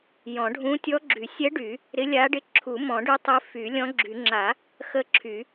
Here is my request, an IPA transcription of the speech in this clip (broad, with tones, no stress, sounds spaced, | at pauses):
j ɔ̃˨˩˦ ɖʱ ũ˧˥ tʲ ɔ˧˥ ɡ͡ǁ y˨˩˦ sʲ ɛ˧˥ ɖ y˨˩˦ | ɾ ɪ˧˥ lʲ a˧˥ ɖ ɪ˧˥ ǁʰ u˨˩˦ m ɔ̃˨˩˦ ɖ ʉ˧˥ tˤ ɪ˧˥ f y˨˩˦ lʲ ɔ̃˧˥ ɡ͡ǁ y˨˩˦ ŋ͡ǁ a˨˩˦ | x ə˧˥ ǁʰ y˨˩˦